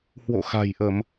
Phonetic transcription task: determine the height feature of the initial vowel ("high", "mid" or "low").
mid